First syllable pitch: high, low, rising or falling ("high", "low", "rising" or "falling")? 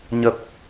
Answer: low